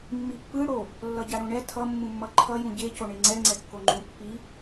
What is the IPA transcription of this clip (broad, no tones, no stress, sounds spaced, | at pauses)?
mː i pː ɯ ɽ o | lː ʌ ɟ a ɽ õ ɳ ɛ tʰ ʌ mː ũ mː ʌ ǃʰ ʌ j ũ ɟ e c o ɳ e ŋ͡ǀ ɛ ŋ͡ǀ ɛ kː o ŋ͡ǃ ũ pː i